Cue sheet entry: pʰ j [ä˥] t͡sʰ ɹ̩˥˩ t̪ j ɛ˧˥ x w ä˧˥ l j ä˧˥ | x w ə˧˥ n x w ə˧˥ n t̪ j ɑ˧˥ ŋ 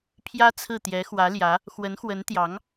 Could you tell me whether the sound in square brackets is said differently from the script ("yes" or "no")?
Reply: no